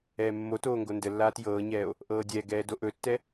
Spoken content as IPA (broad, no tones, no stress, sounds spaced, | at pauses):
ɛː mː o t oː ŋ ɡ o n d ə lː aː t j ɤː ɲ ɛː o̯ | ʔ ɤː dʲ ɛː ɡ ɛː d o ʔ ɵ tː ɛ